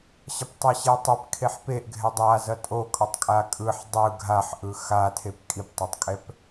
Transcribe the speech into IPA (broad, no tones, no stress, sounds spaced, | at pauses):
ɕ ʌ p tˤ ɛ ɕ e tˤ e p kʰ e ħ p e ʔ ɡʱ ɛ dˤ a z ʌ tʼ o kʼ ʌ tˤ kʼ a kʼ ɯ ħ dˤ ɯ ɡʱ a ħ ʔ ɯ x a tʰ e p kʼ i p tˤ a tˤ kʼ ɛ p